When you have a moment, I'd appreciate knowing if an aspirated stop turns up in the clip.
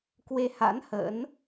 no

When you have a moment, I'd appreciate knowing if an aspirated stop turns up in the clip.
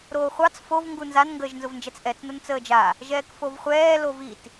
no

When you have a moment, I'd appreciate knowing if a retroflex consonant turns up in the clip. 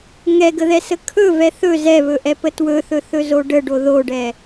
yes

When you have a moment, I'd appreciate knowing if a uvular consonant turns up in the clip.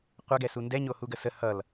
yes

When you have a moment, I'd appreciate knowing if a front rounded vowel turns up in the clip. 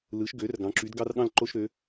yes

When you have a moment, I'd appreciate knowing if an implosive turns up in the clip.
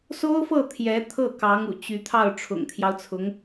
no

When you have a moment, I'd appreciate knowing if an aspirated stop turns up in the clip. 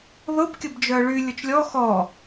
no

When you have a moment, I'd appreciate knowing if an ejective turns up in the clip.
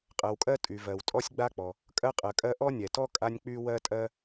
yes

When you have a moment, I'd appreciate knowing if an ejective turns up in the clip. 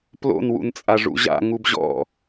yes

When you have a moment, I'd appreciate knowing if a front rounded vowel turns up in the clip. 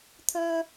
yes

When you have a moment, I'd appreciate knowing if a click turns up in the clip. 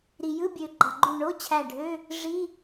yes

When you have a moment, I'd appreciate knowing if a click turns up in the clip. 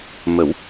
no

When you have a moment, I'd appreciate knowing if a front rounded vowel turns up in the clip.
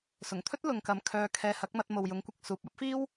yes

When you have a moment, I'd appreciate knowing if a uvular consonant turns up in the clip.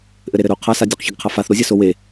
yes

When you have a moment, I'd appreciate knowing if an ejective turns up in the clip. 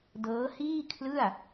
no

